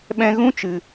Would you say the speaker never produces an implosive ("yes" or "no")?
no